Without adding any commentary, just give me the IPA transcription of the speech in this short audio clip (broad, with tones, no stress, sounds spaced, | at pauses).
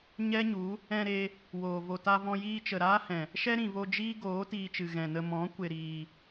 ɲ ɛ˦ ɲ u˨˦ | ɛ̃˧ ɾ e˧ | w oː˨ v o˨ t a˧ v ɔ̃˧ j iː˧ t͡ʃ ə˨ ɾ aː˦ h ɛ̃˨ | ʃ ɛ˦ ɾ ĩ˨ v o˧ d͡ʒ iː˦ ɡ oː˨˦ t iː˧ t͡ʃ ɨ˨ ɣ ɛ̃˨ n ə˧ m ɔ̃˨˦ kʷ e˨ ɾ iː˨